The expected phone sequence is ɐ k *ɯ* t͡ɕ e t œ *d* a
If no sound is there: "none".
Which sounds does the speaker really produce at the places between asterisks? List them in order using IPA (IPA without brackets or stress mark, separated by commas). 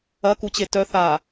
u, θ